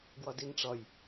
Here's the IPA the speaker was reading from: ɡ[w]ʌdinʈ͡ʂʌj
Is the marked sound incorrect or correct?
correct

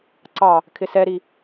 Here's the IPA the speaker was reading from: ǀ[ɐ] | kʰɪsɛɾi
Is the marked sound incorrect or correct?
incorrect: ɑ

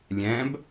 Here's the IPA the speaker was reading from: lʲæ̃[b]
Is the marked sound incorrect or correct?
correct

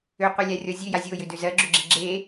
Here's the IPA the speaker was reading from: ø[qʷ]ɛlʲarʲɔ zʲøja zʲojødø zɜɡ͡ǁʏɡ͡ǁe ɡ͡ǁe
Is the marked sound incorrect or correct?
correct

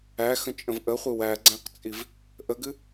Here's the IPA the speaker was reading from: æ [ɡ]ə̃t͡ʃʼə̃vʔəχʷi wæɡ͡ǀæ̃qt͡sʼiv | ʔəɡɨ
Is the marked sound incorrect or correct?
incorrect: x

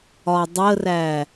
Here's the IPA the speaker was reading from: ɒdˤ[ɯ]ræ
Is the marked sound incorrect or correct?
incorrect: ə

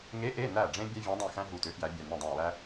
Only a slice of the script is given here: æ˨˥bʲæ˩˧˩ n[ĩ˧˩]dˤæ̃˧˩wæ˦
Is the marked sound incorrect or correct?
correct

